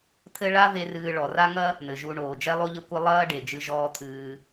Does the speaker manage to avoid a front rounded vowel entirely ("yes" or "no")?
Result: yes